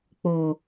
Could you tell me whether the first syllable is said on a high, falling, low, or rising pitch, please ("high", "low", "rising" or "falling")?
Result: low